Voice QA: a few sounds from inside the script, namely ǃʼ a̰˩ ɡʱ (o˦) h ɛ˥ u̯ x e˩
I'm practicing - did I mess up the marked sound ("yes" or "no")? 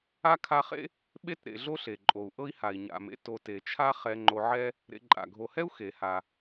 yes